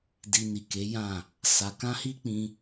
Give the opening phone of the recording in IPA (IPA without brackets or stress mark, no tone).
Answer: d